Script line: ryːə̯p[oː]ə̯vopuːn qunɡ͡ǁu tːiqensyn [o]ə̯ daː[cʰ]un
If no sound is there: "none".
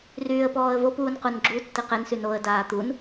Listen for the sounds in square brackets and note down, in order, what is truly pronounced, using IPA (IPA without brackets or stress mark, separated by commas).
ɔː, o, t̪